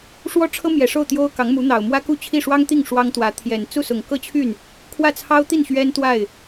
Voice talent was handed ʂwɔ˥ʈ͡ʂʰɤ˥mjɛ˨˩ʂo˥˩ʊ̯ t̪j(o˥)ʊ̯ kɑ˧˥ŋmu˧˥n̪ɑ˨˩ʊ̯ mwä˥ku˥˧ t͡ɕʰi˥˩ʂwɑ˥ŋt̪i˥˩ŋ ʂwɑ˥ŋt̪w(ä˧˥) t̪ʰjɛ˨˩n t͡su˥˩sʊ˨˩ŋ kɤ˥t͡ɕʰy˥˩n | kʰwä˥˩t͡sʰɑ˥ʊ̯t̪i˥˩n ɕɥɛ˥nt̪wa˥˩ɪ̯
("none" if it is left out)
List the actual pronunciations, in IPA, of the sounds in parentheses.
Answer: o˥, ä˧˥

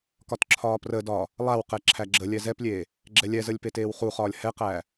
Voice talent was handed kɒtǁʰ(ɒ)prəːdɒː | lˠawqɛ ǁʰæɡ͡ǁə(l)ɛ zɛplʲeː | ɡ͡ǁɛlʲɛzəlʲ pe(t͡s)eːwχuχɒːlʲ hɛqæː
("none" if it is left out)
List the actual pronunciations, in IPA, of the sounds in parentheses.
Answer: ɒː, lʲ, t

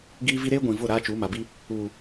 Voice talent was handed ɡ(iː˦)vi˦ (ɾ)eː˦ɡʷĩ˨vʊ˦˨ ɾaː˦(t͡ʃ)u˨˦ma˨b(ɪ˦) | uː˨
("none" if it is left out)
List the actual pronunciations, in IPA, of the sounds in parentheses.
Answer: iː˦, ɾ, t͡ʃ, i˦

